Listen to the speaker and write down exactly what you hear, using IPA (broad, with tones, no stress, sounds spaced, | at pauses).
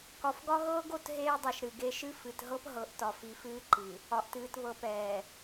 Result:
k ɒ˨ f ɡ ɒ˦ ɣ ɤː˦ ɡ o˨ t ɦ eː˦ dˤ ɛ˨ ʃ ɾ ɨ˨ ɡ e˦ ʃ ɨ˦ f ɨ˨ t ɦ ɤ˦ p ɦ ɤ˨˦ ʔ t ɒ˨ f i˨˦ f ɨː˦ ǃ ɨ˨ | ɒ˨ ʔ t ɨː˨ t β ɤ˨ p ɛː˨